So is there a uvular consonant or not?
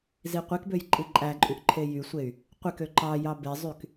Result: yes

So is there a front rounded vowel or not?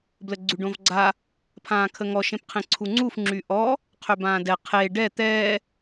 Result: yes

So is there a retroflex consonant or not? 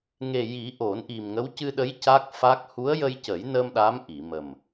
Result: no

